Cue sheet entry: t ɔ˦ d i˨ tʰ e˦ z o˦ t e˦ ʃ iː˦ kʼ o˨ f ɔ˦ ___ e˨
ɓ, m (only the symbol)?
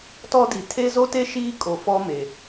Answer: m